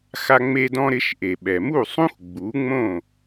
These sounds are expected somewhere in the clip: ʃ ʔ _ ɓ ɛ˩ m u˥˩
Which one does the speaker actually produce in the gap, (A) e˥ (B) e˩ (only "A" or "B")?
B